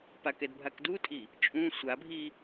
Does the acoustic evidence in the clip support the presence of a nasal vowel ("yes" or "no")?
yes